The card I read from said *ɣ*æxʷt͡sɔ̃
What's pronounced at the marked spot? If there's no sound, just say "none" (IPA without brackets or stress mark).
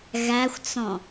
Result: ɣ